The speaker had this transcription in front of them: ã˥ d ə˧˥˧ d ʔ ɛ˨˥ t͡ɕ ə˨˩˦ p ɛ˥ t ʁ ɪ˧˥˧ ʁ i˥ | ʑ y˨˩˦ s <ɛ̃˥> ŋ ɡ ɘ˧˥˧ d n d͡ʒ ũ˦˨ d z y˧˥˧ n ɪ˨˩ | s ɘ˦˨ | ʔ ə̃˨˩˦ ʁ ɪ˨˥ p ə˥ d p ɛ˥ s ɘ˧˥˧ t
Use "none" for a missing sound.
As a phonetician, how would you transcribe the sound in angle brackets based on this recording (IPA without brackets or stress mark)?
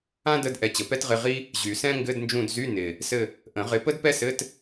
ɛ̃˥